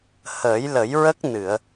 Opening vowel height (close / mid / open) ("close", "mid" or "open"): mid